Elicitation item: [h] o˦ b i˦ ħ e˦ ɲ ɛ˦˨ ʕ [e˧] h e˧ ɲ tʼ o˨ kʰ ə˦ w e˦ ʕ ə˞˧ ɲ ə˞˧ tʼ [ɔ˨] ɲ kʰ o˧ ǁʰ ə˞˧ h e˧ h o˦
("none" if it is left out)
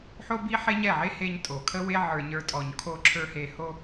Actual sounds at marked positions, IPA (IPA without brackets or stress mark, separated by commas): ħ, e˦, ɔ˨